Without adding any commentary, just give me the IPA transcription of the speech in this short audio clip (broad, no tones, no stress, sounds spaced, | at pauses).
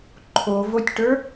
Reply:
ǃʰ o v o tʲ ʈ ə˞